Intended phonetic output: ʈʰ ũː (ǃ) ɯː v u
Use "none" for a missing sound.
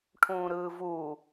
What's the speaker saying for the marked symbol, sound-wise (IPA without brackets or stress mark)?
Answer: ɾ